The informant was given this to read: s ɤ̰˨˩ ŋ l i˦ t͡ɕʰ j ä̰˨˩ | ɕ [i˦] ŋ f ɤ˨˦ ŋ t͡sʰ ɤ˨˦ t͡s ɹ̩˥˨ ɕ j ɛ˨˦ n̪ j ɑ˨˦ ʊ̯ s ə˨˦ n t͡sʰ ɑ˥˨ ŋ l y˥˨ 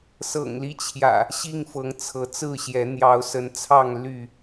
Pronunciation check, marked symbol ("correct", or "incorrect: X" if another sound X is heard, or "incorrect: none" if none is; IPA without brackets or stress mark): incorrect: i˥˨